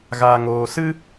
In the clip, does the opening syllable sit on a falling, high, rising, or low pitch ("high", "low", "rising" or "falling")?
low